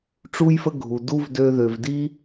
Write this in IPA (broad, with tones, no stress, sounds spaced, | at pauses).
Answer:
ʈ͡ʂ u˦ j f ə˦ ɡʱ u˩ d u˥ v d ø˦ ð ø˨ v d i˥